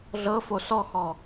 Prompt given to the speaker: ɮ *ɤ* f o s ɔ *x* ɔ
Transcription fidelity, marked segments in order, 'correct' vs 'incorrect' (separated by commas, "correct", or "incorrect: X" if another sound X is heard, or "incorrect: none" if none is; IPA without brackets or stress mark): correct, correct